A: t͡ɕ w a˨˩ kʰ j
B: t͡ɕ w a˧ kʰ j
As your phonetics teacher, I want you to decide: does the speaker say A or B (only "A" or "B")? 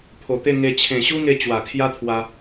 A